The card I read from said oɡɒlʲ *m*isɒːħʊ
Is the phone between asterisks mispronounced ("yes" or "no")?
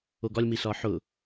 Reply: no